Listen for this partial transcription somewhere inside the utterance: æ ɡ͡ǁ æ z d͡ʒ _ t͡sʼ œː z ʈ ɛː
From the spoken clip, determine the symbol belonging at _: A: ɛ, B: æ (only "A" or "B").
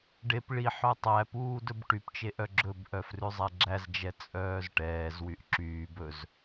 A